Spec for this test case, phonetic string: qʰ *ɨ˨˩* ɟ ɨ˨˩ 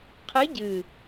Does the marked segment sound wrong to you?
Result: yes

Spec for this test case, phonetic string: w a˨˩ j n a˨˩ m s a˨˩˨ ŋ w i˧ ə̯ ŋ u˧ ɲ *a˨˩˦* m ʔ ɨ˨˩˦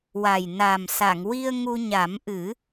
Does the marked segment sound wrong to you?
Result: no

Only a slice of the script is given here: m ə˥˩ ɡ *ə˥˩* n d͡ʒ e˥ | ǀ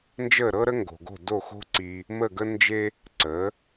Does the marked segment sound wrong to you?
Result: yes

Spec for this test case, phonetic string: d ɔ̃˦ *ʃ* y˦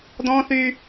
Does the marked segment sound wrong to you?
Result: yes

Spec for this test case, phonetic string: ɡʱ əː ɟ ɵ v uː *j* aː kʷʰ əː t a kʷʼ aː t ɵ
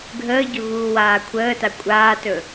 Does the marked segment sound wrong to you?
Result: yes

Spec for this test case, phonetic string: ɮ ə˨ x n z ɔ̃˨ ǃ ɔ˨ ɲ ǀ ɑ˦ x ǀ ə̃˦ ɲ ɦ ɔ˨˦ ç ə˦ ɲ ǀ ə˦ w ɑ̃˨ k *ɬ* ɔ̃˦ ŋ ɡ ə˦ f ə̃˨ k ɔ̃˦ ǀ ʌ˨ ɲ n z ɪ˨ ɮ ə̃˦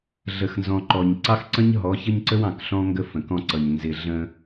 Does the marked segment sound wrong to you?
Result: no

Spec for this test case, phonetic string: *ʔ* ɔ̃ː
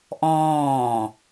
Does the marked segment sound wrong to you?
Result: no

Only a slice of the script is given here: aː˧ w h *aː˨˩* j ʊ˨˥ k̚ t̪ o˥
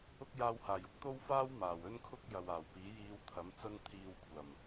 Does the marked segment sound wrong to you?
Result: no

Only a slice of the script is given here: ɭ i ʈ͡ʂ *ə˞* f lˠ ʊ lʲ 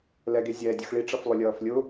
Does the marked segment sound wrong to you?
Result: yes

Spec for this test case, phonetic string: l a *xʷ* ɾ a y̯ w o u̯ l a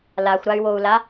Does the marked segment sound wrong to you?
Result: no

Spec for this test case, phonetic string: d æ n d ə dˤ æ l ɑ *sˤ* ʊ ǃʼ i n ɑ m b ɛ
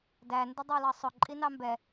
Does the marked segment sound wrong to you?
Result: no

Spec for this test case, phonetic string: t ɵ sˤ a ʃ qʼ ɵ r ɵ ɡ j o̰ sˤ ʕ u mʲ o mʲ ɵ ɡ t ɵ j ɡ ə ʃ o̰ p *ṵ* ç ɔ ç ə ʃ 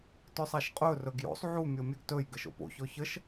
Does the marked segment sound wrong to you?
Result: yes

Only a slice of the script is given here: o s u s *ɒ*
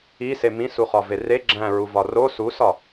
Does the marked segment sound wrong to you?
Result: no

